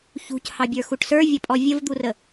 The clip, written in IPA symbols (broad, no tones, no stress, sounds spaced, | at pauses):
ç ṳ c h ɑ bʲ ə˞ x u ʈ s ə˞ vʲ ʌ pʼ ɔ vʲ ə v d̪ u r ə